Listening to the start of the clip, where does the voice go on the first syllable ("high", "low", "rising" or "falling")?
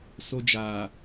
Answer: high